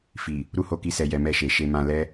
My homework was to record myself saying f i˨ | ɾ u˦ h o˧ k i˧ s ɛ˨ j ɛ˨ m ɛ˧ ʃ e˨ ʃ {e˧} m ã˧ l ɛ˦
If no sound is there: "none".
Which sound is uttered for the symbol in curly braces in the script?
e˧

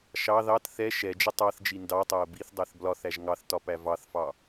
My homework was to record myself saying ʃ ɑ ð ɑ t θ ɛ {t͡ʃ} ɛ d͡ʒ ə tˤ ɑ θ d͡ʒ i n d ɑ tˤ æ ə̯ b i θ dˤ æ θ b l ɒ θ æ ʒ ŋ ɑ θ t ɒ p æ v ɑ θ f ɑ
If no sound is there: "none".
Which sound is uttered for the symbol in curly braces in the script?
ʃ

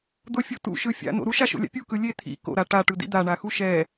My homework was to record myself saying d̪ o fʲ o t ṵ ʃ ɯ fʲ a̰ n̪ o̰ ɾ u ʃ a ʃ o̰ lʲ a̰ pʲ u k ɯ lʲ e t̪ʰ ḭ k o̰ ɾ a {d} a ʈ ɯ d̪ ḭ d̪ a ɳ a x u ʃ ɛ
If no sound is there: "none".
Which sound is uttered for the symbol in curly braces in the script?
ʈ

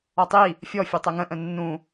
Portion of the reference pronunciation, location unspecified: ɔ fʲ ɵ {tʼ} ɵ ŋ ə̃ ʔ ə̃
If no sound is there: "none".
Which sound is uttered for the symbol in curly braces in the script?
tˤ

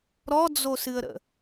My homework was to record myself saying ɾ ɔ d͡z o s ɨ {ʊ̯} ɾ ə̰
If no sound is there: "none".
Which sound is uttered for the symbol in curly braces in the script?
ə̯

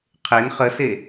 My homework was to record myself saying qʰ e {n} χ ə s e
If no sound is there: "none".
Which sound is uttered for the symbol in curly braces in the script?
n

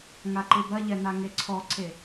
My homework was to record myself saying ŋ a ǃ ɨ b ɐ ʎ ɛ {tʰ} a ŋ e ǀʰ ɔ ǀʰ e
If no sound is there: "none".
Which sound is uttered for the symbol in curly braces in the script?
n̪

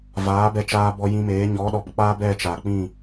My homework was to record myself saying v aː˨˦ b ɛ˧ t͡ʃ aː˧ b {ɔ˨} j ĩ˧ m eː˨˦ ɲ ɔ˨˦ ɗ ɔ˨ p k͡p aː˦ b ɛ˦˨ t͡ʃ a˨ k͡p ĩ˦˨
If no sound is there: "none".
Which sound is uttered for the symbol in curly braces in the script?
ɔ˧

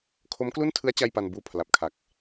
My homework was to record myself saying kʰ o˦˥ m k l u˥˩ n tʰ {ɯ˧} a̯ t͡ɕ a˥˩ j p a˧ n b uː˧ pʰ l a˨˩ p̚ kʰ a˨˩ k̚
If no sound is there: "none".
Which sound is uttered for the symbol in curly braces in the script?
ɯ˦˥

